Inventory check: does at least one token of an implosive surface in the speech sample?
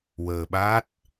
yes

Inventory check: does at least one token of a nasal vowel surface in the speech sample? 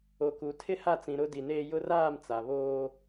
yes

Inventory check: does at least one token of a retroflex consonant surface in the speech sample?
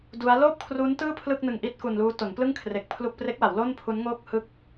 no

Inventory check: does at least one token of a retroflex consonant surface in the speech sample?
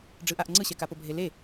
yes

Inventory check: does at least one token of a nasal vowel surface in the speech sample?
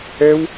no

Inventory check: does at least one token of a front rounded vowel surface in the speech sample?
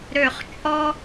yes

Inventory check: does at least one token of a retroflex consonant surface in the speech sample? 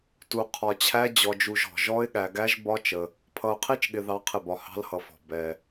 no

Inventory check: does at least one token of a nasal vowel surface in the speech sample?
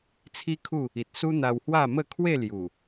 no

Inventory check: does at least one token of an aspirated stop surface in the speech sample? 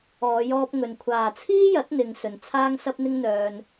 yes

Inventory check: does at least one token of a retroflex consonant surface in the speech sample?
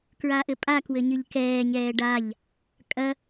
yes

